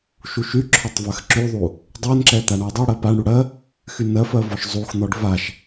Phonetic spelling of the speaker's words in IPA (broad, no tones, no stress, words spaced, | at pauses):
ʃuʃyǁʰɔtˤ vɜxǁyðˤu | dˤɜnǁɛ t̪aɳɔdˤɛɽɜ paɳɽu ɽɜ | xynɜfɜ vɔʃzˤuxn̪ɔɖ vaʃ